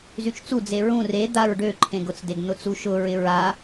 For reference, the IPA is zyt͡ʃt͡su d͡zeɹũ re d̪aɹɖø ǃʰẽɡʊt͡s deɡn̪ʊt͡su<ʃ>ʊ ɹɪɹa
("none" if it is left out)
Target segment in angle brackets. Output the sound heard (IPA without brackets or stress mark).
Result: ʃ